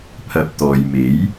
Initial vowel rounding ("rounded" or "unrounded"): unrounded